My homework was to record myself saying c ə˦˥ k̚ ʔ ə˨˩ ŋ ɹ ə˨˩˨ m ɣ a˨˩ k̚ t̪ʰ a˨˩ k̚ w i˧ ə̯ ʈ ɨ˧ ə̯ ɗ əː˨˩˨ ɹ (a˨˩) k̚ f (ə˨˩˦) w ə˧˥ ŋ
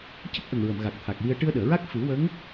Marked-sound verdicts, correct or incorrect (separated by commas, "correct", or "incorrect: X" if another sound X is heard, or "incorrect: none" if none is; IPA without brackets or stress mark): incorrect: a˦˥, incorrect: ɨ˨˩˦